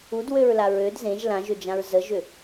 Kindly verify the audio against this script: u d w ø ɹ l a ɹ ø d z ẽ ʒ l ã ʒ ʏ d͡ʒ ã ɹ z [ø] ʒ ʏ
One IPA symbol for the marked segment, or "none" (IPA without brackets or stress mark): ə